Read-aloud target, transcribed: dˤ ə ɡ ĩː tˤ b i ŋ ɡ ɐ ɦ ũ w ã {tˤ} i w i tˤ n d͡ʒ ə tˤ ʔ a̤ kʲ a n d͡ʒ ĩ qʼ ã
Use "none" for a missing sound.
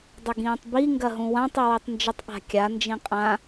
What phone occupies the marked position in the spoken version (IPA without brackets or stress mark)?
tˤ